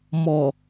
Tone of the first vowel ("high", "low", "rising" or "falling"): low